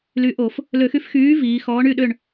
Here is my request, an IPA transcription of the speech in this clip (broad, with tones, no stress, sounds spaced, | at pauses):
l y˨˥ ʔ o˧˩˧ f | l ø˧˩˧ x y˧ f x yː˨˥ v iː˩˧ x ɔː˨˥ ɳ y˥˨ ɗ ø˥˨ ɳ